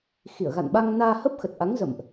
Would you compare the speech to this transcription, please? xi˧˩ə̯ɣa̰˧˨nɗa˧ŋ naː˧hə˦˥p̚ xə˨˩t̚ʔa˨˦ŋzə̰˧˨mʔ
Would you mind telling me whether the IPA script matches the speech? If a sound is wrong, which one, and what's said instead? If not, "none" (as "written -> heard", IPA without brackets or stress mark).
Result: ɗ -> ɓ